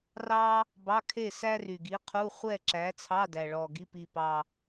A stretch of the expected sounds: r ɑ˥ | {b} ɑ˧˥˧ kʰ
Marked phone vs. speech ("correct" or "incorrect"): correct